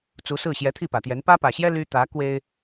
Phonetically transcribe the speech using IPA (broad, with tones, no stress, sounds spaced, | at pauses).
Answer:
t͡s u˧˥ s ɹ̩˥˩ ɕ j ɛ˧˥ t̪ʰ i˥˩ p ä˨˩ t̪ j ɛ˧˥ n p ä˥ p ä˨˩ ɕ j ɛ˥ l y˥ t̪ ä˧˥ k w e˥ ɪ̯